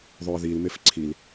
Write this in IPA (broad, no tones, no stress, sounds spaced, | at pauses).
ðˤ œ ə̯ ð i l m e f ǀʰ i l